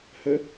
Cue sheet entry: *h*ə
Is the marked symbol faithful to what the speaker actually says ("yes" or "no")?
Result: yes